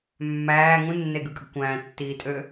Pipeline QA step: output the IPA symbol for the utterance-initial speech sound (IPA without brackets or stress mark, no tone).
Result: mː